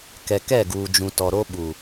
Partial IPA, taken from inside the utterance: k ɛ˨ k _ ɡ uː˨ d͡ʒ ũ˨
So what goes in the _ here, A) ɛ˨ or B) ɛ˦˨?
B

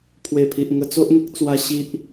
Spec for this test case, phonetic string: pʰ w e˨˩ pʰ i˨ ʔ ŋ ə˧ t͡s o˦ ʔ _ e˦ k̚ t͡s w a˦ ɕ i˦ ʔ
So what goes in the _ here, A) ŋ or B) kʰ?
A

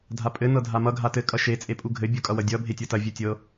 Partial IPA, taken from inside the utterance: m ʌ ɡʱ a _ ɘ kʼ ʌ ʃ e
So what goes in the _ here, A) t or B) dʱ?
A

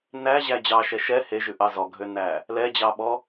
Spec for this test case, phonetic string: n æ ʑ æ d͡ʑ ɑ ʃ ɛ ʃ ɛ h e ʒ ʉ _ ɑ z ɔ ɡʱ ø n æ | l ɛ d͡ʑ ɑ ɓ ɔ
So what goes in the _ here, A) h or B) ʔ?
B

